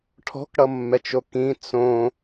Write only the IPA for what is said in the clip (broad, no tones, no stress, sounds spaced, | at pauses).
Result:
ʈʰ ɔ̤ k ɽ ʌ mː ɛ t͡ʃ o k ĩ t͡s õ